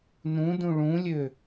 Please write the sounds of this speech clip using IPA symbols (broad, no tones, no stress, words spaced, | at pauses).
nũdũ ɭũlʲø